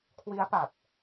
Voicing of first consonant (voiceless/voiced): voiceless